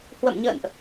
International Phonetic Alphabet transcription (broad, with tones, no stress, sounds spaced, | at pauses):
h w ə̰˧˨ m ɲ ə̰ː˧˨ n ʔ